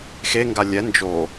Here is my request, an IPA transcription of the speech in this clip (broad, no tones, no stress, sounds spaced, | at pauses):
x e ŋ ɡ a lʲ ɛ n d͡ʒ o